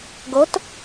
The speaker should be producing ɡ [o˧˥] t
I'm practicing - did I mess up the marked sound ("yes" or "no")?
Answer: no